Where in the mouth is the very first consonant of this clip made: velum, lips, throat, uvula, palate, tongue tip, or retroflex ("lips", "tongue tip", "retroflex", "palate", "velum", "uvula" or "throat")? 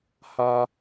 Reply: throat